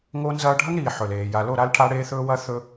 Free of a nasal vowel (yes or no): yes